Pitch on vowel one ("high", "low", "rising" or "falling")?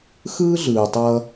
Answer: high